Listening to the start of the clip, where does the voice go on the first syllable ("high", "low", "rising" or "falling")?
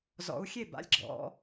rising